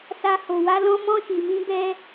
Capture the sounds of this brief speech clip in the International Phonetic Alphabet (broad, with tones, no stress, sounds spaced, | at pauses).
s a˧ h o˧ w a˦ l ɔ̃˦ m ɔ̃˦ ʃ i˧ m ĩ˦ b ɛ˦